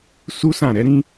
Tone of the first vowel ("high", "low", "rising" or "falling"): high